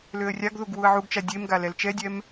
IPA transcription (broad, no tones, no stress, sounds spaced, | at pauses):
l ø ə̯ rʲ a ɡ ð u ɡ w u ə̯ ʕ u ɡ t͡ʃ a dʲ e m ɡ a l ɛ l t͡ʃ ɛ dʲ ɛ m